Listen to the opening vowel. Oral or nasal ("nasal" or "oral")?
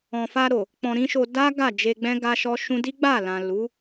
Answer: nasal